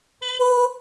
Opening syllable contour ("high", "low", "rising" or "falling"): high